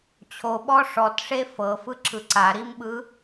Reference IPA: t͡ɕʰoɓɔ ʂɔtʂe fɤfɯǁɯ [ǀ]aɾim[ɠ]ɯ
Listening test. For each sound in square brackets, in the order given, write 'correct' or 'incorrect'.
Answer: correct, incorrect

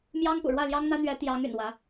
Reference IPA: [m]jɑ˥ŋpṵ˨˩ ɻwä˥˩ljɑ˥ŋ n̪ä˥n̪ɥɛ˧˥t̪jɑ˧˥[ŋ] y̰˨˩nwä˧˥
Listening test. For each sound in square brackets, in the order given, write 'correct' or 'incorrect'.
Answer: correct, correct

